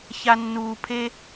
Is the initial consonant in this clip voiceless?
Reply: yes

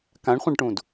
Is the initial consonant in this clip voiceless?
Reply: yes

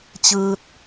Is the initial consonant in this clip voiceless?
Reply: yes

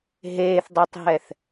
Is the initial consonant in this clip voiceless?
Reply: no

